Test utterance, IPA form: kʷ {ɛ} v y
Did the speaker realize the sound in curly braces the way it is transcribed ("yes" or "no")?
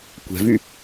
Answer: no